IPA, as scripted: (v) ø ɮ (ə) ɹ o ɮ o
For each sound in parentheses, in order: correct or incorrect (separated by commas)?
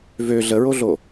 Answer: correct, correct